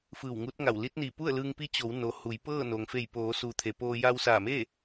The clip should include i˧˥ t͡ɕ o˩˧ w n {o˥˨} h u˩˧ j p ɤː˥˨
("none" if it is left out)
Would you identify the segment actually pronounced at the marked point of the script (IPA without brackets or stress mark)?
o˩